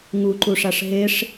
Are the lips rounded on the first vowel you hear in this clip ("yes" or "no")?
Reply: yes